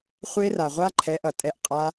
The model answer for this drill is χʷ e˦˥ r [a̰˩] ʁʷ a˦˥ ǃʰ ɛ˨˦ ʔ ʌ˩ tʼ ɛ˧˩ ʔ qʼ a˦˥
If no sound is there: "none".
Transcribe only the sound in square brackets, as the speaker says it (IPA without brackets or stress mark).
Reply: a˩